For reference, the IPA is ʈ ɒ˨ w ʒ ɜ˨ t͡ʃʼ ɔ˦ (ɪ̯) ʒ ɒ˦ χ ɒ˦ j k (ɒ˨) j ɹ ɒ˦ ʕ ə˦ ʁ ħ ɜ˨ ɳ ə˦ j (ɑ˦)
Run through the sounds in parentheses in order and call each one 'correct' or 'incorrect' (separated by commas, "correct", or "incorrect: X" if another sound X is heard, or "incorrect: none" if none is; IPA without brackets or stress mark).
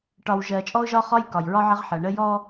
incorrect: ʊ̯, correct, incorrect: ɔ˦